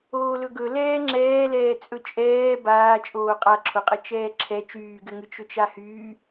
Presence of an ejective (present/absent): present